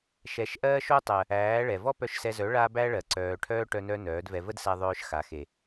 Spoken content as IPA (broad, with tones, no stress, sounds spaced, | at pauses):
ʃ ɛ˨˦ ʃ ʔ ɜː˦ ʃ o˦ tˤ ɜ˨ | æː˨˦ ɭ ɛ˨ v ɔ˦ p œ˧ ʃ s ɛ˧ z œ˨˦ ɭ a˦ b æ˦ ɭ ɜ˨ ǀ œː˨ ʈʰ œː˦ ʈ œ˧ n œ˧ n œː˨˦ d v ɛ˧ v ə˦ d s æ˧ ðˤ œː˧ ʃ x a˨ x e˨